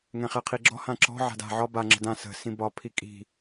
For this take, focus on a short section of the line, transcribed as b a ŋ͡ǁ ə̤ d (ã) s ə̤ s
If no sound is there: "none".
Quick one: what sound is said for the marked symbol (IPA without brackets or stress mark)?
ã